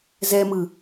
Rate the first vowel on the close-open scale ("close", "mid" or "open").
mid